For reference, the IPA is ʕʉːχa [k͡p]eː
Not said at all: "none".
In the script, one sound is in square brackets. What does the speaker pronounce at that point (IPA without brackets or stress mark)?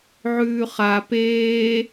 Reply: p